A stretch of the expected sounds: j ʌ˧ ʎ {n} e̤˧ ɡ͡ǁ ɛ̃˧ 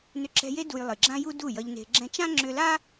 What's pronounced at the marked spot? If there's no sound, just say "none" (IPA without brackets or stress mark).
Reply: n